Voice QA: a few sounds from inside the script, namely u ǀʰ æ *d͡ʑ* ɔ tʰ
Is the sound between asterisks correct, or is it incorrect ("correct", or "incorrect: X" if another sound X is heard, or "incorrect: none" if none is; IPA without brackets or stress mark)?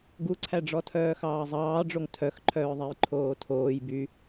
incorrect: ɖ͡ʐ